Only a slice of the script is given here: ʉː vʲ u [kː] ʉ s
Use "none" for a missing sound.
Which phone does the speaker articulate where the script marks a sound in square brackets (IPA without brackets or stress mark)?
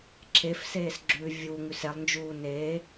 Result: ŋ